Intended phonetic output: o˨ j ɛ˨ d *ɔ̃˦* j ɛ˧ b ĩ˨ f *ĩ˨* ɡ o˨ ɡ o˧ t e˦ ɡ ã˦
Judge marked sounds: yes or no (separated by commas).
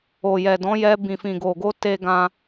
no, yes